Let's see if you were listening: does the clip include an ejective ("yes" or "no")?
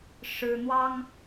no